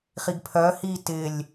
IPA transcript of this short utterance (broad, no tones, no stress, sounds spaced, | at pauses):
χ i ɡ pʰ œ h i t ɪ lʲ